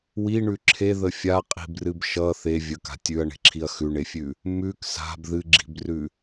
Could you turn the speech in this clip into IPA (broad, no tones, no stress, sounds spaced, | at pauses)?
w i ɳ ʉ ǁʰ e ð ə fʲ a qʼ i̤ b r ɨ b ʃ ʌ θ e vʲ ə k a̤ tʲ ʉ ɐ̯ ɳ e̤ ǁʰ i ɐ̯ x ʉ ɳ e fʲ ʉ | m ʉ k s a̤ b ð ɨ ɡ͡ǁ i̤ b r ʉ